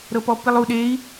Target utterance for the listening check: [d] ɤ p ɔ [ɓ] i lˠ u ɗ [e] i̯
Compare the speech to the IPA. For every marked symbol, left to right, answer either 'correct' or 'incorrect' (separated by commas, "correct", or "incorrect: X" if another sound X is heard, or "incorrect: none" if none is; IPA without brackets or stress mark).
incorrect: ɾ, incorrect: p, correct